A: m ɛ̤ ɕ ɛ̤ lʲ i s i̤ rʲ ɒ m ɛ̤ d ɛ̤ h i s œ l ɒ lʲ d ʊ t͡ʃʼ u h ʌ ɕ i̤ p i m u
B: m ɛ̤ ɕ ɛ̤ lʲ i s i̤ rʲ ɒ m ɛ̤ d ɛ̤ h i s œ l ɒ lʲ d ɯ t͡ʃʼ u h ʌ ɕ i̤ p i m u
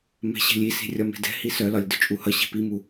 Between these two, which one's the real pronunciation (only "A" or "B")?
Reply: A